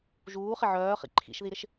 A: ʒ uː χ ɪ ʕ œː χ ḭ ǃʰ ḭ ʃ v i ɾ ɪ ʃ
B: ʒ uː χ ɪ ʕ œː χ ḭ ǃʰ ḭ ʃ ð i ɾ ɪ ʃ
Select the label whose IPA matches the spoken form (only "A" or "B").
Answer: B